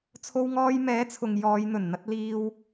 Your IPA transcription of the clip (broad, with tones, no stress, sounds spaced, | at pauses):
t͡sʰ o˧ w ŋ ɔː˧ j m ɛː˨˥ t͡sʰ ʊ˨ ŋ j ɔː˨˧ j n̪ ɵ˨˩ n n̪ ɐ˧ t̚ l iː˧ w